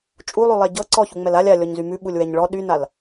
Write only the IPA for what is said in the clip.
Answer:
t͡ʃʼ u lˠ ʉ lˠ ɛ ɟ ɤ ǀ ɔ ç u ŋ͡m ɛ l a lʲ a lʲ ɔ ɲ z y m ʉ ɓ u lʲ w ɛ ɲ ɭ ɔ ɗ y n a l

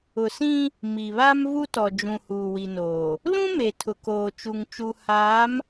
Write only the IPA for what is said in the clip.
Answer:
ʊ˨ s ĩ˦ | m i˨ β a˦ m v u˦ t ɔ˨ d͡ʒ ũ˨ h uː˨ w i˨ n oː˨ | l ũ˦ m e˨ tʰ ʊ˨ k oː˨ t͡ʃ u˨ ŋ t͡ʃ u˨ h aː˨˦ m

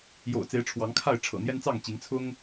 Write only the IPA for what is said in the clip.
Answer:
j o̰˨˩ ʊ̯ t͡s e˨˦ ɪ̯ ʈ͡ʂʰ w ɑ˨˦ ŋ kʰ a˥˨ ɪ̯ ʈ͡ʂʰ ɤ̰˨˩ n̪ j ɛ˦ n t͡s ɑ˥˨ ŋ t͡ɕ i˨˦ ŋ t͡sʰ ʊ˦ ŋ

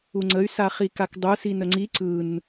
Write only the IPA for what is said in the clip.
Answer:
u ŋ͡ǀ ə y̯ s a χ i k a k dˤ u s i n ə ŋ͡ǀ i ǀ ɯ n

